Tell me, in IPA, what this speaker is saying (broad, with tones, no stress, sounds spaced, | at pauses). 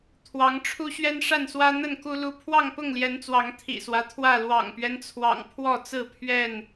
t̪ʰ w ɑ˨˦ ŋ ʈ͡ʂʰ u˦ ɕ ɥ ɛ˦ n ʂ a˥˨ n s w ä˦ n̪ ə˥˨ n k u˦ l u˦ pʰ w ɑ˥˨ ŋ p ʊ˥˨ ŋ l j ɛ˨˦ n t͡s w ɑ˨˦ ŋ t̪ʰ ḭ˨˩ s w ä˦ t̪ʰ w ä˥˨ l w ɑ̰˨˩ ŋ p ɥ ɛ˦ n t͡sʰ w ɑ̰˨˩ ŋ pʰ w ɔ˥˨ t͡s ɹ̩˥˨ pʰ ɥ ɛ˥˨ n